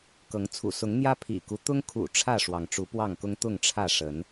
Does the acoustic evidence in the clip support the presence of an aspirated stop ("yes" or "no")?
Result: yes